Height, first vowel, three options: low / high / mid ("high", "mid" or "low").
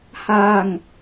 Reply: low